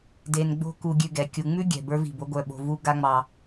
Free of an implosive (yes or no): no